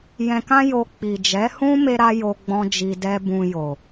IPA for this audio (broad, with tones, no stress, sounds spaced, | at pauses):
j ɛ̃˧ k ã˦ j o˧ k͡p i˨ d͡ʒ ɛ˨˦ h ũ˦ m e˦ ɾ a˦ j o˧ ɡ͡b ɔ̃˦ d͡ʒ i˧ d ɛ˦ b ũ˧ j o˨